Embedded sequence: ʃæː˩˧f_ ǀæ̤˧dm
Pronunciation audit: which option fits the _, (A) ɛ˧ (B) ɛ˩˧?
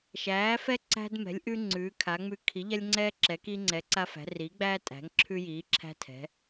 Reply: A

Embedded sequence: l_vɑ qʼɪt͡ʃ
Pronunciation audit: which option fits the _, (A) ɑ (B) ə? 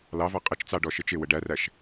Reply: A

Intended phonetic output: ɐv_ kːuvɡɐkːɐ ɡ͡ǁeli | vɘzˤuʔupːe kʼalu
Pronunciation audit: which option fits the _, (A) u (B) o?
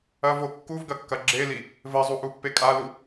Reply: B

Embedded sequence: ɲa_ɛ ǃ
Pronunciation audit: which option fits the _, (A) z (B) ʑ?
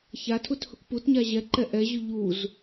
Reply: B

